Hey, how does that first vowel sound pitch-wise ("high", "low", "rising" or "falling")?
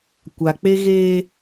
low